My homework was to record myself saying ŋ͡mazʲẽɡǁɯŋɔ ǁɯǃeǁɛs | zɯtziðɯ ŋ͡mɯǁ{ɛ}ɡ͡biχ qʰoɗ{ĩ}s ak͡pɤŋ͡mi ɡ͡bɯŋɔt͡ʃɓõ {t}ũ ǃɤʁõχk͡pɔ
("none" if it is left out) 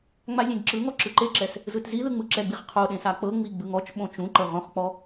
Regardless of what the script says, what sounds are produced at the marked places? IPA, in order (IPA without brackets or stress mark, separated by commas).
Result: ɛ, ẽ, t͡ʃ